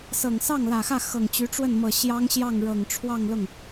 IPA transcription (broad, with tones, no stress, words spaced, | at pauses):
sɤ˨˩ŋsɑ˥˩ŋlä˨˩xä˥˩ xɤ˨˩ŋt͡ɕy˧˥ʈ͡ʂwə˥˩nmɤ˨˩ ɕjɑ˥ŋɕjɑ˥˩ŋ ɻɤ˨˩ŋʈ͡ʂʰwɑ˥˧ŋlʊ˥˩ŋ